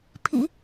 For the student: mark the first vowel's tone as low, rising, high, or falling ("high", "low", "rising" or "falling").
low